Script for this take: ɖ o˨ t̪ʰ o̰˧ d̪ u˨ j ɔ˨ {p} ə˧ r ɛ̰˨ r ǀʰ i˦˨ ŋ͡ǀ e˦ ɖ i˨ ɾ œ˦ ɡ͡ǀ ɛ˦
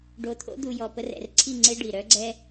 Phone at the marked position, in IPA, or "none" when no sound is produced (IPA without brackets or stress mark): p